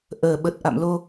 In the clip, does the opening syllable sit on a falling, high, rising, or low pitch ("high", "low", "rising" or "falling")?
low